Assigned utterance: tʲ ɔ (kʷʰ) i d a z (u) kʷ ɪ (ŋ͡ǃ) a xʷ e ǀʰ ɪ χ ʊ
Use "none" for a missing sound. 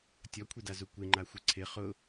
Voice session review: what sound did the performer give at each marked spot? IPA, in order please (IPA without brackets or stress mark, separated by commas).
kʷʰ, u, ŋ͡ǃ